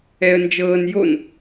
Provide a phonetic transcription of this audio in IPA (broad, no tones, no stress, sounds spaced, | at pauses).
ɛ ə̯ n d͡ʒ ɤː n j o n